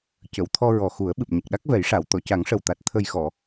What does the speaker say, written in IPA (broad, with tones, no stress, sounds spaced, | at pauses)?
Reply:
c ə˨˩˨ w t̪ʰ ɔ˧ ɹ ɔ˨˩ x u˨˩˦ ə̯ ɓ ɨ˨˩ p̚ ɲ ə˨˩ k̚ ɗ a˦˥ k̚ v ɛ˨˩˦ j ʂ a˨˩˨ w t̪ ɔ˨˩˨ c a˨˩˦ ŋ ʂ ə˨˩ w t̪ a˨˩ t̚ t̪ʰ ə˨˩ j x ɔ˨˩˨